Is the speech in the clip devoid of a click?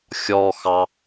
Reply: yes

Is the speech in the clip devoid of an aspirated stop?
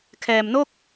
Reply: no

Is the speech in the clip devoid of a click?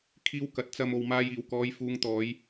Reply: yes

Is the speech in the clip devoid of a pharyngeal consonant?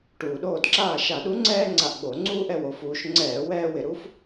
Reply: yes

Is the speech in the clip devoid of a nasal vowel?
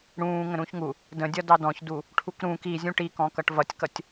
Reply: no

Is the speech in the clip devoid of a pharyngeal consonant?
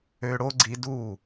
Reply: yes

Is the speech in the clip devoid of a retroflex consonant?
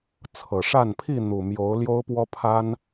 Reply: no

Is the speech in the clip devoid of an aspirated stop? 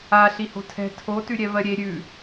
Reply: no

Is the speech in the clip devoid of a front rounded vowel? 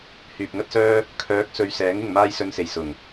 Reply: no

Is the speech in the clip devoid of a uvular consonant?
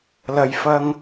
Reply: yes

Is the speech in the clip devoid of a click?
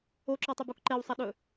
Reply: no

